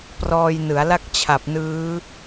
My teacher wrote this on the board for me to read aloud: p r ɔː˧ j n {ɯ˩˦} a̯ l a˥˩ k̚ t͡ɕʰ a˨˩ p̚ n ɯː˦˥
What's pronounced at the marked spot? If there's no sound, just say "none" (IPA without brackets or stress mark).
ɯ˩˦